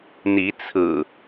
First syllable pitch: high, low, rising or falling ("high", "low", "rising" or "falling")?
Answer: rising